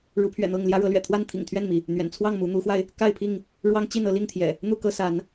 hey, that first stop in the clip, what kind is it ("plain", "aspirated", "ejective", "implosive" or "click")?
aspirated